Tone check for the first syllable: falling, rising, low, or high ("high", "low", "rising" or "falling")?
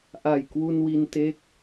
low